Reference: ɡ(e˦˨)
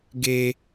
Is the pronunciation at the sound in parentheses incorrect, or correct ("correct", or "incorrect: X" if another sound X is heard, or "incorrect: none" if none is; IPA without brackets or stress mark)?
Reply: incorrect: e˦